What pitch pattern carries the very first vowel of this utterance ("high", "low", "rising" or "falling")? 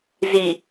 low